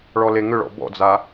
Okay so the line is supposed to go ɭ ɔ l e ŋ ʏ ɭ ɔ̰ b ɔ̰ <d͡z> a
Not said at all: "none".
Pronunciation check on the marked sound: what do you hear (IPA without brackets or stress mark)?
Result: d͡z